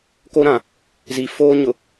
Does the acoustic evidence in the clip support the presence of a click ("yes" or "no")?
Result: no